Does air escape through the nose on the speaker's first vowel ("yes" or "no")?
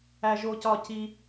no